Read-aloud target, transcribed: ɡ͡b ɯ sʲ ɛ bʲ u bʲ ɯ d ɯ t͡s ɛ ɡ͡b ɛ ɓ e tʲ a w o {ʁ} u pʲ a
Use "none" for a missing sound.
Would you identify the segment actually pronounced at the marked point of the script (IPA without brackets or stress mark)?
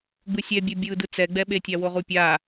ʁ